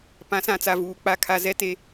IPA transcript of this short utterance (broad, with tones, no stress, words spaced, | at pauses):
pã˨˦sã˨t͡sa˨ vuː˨k͡pa˦kʰa˦ zɛ˦te˦